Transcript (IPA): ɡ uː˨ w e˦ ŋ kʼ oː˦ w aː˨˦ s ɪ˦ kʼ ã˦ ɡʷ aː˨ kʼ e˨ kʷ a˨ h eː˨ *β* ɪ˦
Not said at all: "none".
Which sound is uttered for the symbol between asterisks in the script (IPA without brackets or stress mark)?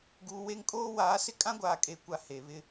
β